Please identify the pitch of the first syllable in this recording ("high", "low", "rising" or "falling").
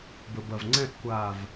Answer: low